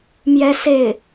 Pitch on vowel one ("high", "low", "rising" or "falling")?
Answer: high